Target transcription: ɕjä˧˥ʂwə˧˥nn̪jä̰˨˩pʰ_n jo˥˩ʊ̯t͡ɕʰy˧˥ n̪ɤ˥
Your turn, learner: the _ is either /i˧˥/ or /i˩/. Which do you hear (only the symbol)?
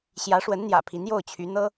i˧˥